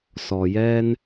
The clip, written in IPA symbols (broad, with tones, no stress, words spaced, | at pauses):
sɔ˩jɛ˧n